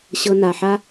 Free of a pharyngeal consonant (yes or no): no